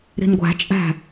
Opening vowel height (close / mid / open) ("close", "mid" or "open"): close